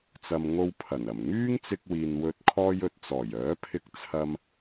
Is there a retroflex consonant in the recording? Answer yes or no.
no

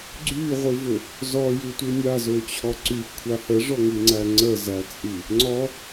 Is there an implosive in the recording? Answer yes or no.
no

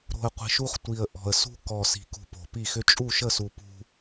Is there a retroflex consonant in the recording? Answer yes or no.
no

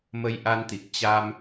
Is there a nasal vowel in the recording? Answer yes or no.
no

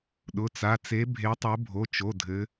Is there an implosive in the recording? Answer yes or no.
yes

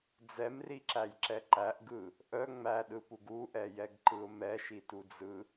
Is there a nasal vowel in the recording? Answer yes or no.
no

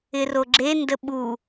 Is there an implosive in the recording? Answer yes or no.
yes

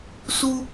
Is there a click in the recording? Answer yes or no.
no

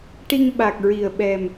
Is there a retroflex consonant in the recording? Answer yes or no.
yes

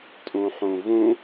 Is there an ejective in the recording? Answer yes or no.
yes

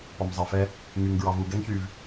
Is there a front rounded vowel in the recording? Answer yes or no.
yes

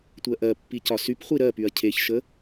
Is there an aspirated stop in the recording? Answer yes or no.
yes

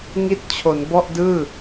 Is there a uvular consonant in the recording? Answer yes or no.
no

